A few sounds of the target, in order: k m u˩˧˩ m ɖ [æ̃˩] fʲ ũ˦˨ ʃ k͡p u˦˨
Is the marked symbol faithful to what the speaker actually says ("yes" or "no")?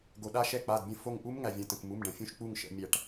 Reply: no